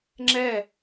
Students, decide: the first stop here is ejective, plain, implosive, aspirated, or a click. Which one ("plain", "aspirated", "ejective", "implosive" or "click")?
click